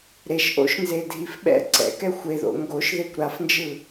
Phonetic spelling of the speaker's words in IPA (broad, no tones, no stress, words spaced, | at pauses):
ɾeʃʔo̰ʃnzedʱif ɓɛ̰ ǀɛ̰kɛ xʷeðo̰ ŋɡoʃðekʷ ɾafnd͡ʒɯ